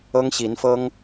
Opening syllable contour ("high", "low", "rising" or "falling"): high